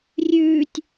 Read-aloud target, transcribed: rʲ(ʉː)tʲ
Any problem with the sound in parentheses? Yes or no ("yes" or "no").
no